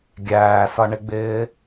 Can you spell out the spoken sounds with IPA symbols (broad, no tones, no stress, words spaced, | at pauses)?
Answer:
ɡʲæːsʌɳɪɡ͡bɪː